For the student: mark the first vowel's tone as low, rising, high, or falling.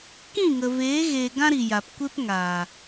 falling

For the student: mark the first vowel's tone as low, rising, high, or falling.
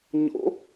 rising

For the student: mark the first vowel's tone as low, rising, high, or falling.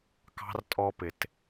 high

